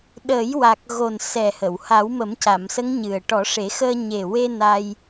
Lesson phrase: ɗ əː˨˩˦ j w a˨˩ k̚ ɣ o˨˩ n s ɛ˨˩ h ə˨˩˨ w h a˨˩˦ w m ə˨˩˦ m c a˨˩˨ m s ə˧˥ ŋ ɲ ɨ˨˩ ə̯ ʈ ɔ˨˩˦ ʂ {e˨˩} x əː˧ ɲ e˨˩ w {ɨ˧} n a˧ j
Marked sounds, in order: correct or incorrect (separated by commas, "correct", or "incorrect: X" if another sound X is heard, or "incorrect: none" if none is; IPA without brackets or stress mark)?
incorrect: e˨˩˦, incorrect: e˧